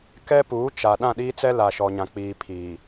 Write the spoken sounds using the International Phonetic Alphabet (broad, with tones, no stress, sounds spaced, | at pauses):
k ɛ˦ p uː˨˦ t͡ʃ a˨ ɗ ã˦˨ ɗ iː˦ t͡s ɛ˦ l a˨ ʃ ɔ˨ ɲ ã˨ k͡p iː˨ pʰ iː˨